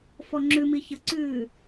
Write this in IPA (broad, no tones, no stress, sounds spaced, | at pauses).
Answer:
f ɔ ŋ͡ǁ ʉ m i ç ə ǀ ʉː